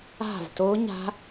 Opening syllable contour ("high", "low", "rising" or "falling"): falling